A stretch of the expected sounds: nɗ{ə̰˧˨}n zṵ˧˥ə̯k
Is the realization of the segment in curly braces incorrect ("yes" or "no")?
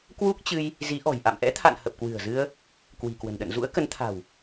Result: no